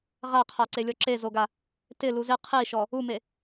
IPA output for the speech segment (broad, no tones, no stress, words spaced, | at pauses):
ʁaqʰaǀelʲɔ ǁezoɡa | tɪlu zɪ qʰiʃɔ | ume